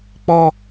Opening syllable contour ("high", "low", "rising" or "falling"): high